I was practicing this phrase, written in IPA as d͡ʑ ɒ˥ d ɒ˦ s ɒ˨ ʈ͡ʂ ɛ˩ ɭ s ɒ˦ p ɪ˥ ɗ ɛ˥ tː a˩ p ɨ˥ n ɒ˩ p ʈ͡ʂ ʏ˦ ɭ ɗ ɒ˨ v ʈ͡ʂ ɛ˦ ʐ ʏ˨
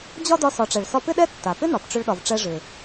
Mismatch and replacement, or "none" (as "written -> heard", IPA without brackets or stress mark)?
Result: ɨ˥ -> ɪ˥